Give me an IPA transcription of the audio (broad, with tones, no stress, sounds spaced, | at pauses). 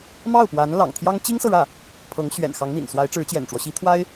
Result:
m ɑ˥˩ ʊ̯ p w a˧˥ n l ɑ̰˨˩ ŋ t̪ʰ j ɑ˥ ŋ t͡ɕ i˥ ŋ s ɤ˨ ɻ ä˥˩ | pʰ ɤ˧˥ ŋ ɕ ɥ ɛ̰˨˩ n x ɑ˧˥ ŋ n̪ ḭ˨˩ n s w a˧˥ ɪ̯ ʈ͡ʂ ɻ̩˧˥ t͡ɕ j ɛ̰˨˩ n ʈ͡ʂ w ɔ˦ ɕ i˧˥ t̪ʰ w a˥ ɪ̯